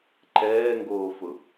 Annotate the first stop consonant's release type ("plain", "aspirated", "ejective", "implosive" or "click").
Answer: click